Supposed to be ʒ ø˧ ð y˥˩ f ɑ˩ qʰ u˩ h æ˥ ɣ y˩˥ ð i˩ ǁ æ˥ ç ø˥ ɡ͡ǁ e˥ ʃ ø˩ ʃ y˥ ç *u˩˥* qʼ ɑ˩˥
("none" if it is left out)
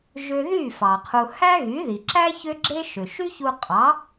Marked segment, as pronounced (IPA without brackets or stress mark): u˧